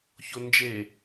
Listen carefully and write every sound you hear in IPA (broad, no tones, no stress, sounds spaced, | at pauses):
ç o n d͡ʒ e